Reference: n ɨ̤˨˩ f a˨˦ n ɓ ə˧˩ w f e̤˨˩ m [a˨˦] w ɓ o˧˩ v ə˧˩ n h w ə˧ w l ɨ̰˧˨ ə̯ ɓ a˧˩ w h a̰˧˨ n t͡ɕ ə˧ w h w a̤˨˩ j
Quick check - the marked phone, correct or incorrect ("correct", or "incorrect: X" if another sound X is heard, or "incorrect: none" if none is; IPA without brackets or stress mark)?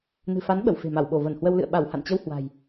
incorrect: a˧˩